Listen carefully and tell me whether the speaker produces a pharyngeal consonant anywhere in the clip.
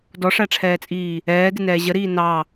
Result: no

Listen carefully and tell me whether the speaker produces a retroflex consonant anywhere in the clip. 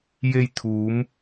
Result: no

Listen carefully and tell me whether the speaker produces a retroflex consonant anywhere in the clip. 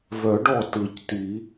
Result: yes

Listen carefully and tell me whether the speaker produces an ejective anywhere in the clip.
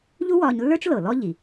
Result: no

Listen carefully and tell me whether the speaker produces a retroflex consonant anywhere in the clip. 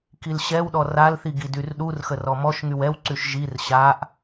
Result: no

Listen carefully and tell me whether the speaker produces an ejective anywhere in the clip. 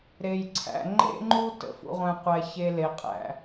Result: yes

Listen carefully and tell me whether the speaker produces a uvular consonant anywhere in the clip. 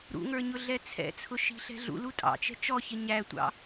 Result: no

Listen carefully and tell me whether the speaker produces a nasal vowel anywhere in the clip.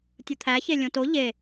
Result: yes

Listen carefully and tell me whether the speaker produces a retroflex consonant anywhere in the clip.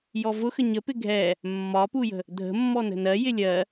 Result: no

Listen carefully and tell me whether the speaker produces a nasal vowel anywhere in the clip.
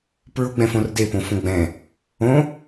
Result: yes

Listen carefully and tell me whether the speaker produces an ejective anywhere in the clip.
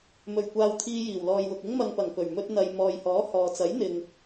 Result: no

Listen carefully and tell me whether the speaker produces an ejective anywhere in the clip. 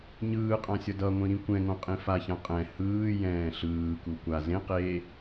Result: yes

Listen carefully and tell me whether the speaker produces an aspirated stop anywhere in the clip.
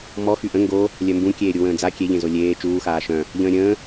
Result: no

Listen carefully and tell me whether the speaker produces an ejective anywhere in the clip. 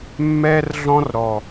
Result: no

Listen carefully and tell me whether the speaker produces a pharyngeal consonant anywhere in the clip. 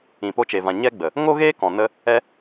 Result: no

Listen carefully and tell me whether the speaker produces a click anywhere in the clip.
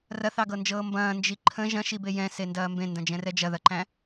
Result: yes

